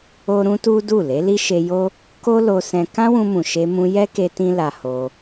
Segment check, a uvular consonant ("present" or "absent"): absent